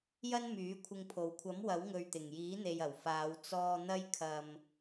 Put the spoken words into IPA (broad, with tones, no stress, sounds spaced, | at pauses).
j ɐ˥ n m yː˨˥ kʷʰ ɪ˧ ŋ pʰ o˨˩ w kʷʰ ɐ˨˥ m w ɐ˨˥ w ŋ ɵ˨ ɥ t̪ ɪ˨˩ ŋ j iː˨˥ n̪ e˨ j ɐ˨˩ w f aː˨˧ w t͡s ɔː˨ n̪ ɐ˧ j kʰ ɐ˨ m